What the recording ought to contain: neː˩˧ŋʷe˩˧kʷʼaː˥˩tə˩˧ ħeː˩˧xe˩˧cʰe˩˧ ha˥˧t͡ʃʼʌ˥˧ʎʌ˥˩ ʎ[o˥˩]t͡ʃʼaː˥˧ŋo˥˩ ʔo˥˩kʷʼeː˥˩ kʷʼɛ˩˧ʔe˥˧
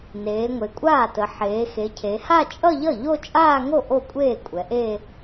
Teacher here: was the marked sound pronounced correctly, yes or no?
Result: no